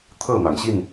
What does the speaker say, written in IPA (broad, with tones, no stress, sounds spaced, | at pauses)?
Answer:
t̪ʰ ɤ˥˨ n̪ ɑ˩ ŋ ɕ i˥˨ n